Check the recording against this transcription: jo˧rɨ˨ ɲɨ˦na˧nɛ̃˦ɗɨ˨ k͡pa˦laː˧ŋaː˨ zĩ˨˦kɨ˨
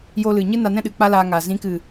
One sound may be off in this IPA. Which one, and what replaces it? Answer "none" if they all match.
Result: r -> l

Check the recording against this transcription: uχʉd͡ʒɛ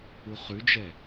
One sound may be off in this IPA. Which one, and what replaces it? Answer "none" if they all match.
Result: none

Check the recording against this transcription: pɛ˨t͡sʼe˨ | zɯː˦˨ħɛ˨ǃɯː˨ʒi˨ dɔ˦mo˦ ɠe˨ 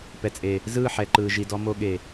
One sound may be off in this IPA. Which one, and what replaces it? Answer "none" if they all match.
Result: none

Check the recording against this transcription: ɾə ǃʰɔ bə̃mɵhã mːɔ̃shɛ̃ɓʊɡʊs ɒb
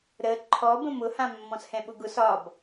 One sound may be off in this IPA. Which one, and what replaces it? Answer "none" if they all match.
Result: ɵ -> ʊ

